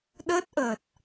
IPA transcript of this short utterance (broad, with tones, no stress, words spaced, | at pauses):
ɗəː˦˥t̚ʔəː˨˩t̚